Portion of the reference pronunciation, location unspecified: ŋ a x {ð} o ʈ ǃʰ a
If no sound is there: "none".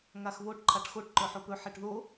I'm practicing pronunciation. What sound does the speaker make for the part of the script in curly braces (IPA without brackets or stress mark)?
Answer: β